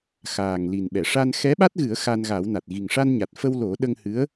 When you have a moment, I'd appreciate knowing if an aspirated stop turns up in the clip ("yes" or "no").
no